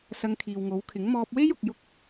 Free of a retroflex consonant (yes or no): yes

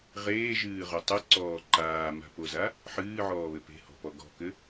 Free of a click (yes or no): no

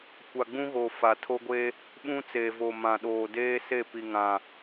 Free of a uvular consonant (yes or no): yes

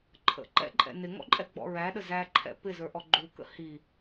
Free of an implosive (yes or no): no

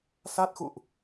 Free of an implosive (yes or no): yes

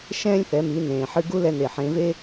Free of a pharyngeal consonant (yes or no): no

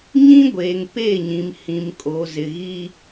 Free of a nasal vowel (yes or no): no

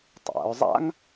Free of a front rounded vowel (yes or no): yes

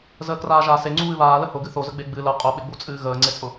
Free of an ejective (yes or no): no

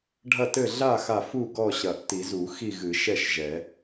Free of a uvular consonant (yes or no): yes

